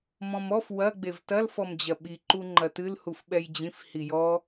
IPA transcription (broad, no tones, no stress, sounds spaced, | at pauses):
m ɔ̃ m ɔ f w ɐ ɡ͡b e v t ɐ l f ɔ m d͡ʑ ɐ ɓ i ǃ u ŋ͡ǃ ɐ t ɨ l h u f ɓ ɛ j d͡ʑ ĩ f h i j ɔ